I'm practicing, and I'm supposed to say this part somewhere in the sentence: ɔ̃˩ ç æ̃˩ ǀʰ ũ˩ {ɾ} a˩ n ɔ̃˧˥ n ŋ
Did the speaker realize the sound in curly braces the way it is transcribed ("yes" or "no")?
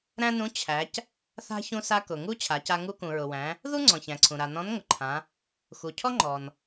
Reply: yes